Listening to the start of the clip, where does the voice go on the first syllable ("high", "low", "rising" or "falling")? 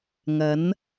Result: rising